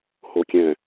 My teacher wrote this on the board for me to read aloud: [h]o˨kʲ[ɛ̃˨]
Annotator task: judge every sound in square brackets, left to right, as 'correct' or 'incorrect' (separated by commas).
correct, correct